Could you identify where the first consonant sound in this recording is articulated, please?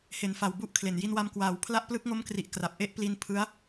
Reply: glottal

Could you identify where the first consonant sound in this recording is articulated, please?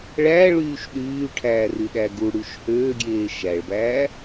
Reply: retroflex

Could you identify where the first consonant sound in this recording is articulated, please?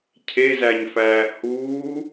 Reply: palatal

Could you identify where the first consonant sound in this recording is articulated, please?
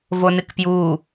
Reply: labial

